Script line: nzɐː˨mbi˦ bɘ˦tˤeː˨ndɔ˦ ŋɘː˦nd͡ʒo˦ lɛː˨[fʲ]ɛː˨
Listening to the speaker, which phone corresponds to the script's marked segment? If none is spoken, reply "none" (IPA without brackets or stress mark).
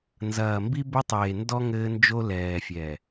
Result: fʲ